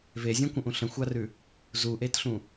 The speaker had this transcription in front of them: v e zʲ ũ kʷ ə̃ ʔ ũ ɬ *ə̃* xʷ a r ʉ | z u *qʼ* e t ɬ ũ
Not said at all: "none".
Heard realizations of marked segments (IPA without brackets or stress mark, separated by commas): ə̃, ʔ